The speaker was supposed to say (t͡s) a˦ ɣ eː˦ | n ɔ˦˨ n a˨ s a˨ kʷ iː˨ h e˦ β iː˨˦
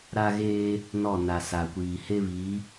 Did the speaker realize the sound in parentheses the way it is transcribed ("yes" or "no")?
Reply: no